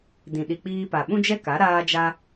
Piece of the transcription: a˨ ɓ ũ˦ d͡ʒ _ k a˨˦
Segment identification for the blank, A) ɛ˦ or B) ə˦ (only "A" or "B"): A